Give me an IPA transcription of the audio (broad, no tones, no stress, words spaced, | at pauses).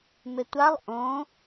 mɪtʷalˠ ʔõ